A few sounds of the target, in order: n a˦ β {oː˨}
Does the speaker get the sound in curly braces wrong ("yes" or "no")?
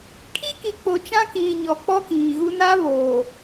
no